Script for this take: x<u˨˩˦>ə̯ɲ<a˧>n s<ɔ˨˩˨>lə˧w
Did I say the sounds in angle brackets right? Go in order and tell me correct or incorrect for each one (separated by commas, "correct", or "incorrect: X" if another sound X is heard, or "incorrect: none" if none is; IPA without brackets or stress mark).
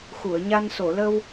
incorrect: u˨˩˨, correct, incorrect: o˨˩˨